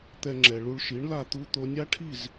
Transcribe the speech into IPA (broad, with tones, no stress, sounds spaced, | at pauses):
t̪ ɛ˧ ŋ͡ǁ ɛ˩ ɭ u˧ ɭ ʃ i˩˥ ɳ l a˥˩ t̪ u˥ t̪ o˧ nʲ a˥ ʈʰ i˥˩ z